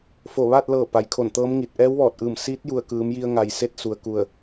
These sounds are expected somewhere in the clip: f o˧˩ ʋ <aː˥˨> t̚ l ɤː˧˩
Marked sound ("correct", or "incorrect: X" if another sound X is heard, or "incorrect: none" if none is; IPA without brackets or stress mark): correct